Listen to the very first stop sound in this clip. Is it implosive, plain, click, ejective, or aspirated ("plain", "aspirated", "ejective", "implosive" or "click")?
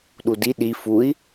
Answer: implosive